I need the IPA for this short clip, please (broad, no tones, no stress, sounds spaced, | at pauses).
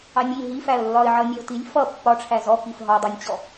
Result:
ɑ nʲ i ɦ i f æ ə̯ lː ɒ ɪ̯ ʕ ʌ nʲ ɛ ʊ̯ t i lʲ f ʌ pː ɒ ʈ͡ʂʰ æ z ɔ k i f ɦ ɒ dˤ ɑ nʲ t͡ɕ ɔ